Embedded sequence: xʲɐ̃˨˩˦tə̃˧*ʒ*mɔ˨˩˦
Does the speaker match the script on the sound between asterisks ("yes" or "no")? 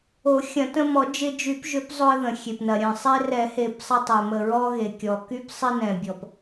no